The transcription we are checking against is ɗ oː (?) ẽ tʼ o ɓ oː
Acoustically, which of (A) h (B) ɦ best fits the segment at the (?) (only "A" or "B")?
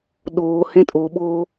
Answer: A